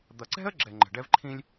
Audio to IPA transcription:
d̪ ʌ˨ ǀ ɛ̤˥ ə̯ ɡ͡ǁ ɛ˨ ŋ͡ǃ ɛ̤˩ ɖ ɛ˦ v ǃʰ ĩ˦ lʲ

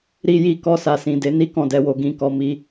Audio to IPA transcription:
ɾ i˧ j i˧ k ɔ˧ s a˨ s ĩ˨ d e˨˦ n i˦ k ɔ̃˦˨ d ɛ˧ w o˧ ɡ ĩ˨ k ɔ˨ m i˧

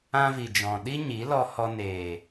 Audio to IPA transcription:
ã˦ v i˨ d͡ʒ ɔ̃˨ ɗ i˦ ɲ i˨˦ l ɔ˧ h ɔ˧ n eː˨

